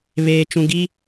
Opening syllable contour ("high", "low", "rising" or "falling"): low